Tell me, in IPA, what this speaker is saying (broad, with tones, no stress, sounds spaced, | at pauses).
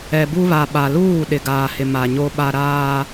ɛ˨ b u˦ β a˨ ɓ a˨ l uː˦˨ ɗ ɪ˨ ɡ aː˨ h ɪ˨ m a˨ ɲ o˦ ɓ a˦ ɾ aː˦